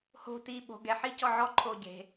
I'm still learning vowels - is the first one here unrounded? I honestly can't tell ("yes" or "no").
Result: no